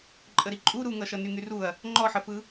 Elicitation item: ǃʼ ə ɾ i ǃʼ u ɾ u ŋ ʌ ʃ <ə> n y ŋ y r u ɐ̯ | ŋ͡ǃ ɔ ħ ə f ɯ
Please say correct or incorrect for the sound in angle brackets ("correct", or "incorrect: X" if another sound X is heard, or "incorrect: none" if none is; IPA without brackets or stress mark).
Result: incorrect: ʌ